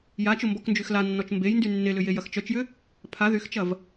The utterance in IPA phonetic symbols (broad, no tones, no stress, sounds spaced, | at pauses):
j a t͡ʃ ʊ m b ɔ k n d͡ʒ y x l a nː ɔ t͡ʃ m b e j n d y nː e l ʏ j e j ɐ x t͡ʃ œ t͡ʃ j ʏ | pʰ a ð y x t͡ʃ ɐ v